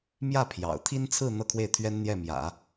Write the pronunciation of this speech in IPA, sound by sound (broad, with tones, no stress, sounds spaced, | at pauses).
m j ä˥˩ pʰ j ɑ̰˨˩ ʊ̯ t̪ʰ i˥ n t͡sʰ ɹ̩˥˧ n̪ ɤ˥˧ kʰ w e˥˩ ɪ̯ t̪ʰ ɥ ɛ˥ n n̪ j ɛ˥˩ m j ä̰˨˩˦